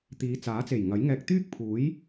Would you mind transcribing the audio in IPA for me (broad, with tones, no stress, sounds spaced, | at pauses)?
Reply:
t̪ iː˨˧ t͡s aː˨˥ t͡s e˨˩ j ŋ ɐ˨˥ j ŋ ɛː˧ k̚ t̪ yː˥ k̚ pʰ uː˨˥ j